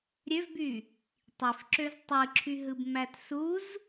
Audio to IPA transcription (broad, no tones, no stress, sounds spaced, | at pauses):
ɾʲ ø v b y | tˤ i f ǁ ø z tˤ ɯ ǁʰ y ɦ ɯ b m æ t s u z